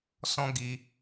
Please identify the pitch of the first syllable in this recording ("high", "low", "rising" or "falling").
high